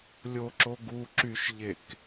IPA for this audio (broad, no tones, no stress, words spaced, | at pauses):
lʲoǁo ɡu ǁyʃʎek